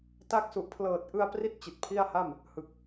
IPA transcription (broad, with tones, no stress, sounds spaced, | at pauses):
t a˦˥ k̚ s u˨˩ ʔ pʰ l ɤː˨˩ t̚ ʔ ɯ˧ a̯ p r i˥˩ t̚ t͡ɕ i˨˩ t̚ pʰ i˥˩ a̯ h a˥˩ m | h ɯ˨˩ k̚